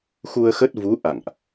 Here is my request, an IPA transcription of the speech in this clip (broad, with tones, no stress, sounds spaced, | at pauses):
x u˧ ə̯ x ə˦˥ t̚ v u˨˦ ʔ a̰˧˨ ŋ ʔ